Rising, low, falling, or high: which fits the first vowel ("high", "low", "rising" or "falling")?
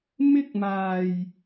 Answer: high